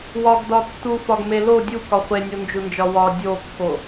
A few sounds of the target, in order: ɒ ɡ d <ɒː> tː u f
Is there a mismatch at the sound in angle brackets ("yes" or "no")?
yes